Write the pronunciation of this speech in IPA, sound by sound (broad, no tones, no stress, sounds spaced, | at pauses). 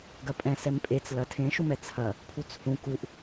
ɡ ɐ pʼ ɛ̃ s ɛ m pʼ e t͡s l ɐ tʰ ẽ ʃ u m ɛ t͡sʰ ɐ | pʰ u t͡s h ũ k u ʔ